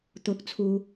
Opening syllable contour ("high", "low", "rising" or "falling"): rising